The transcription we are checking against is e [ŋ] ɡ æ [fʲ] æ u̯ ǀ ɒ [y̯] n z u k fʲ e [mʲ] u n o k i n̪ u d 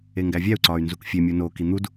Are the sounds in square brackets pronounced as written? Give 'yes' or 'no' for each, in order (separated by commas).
yes, no, yes, yes